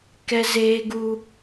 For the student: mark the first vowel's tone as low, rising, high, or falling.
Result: high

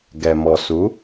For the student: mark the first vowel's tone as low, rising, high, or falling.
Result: low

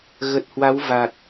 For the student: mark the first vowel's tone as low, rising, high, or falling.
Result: low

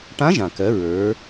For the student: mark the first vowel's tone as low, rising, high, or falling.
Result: rising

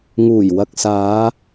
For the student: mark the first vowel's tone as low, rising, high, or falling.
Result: low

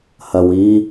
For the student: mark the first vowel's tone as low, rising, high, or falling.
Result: low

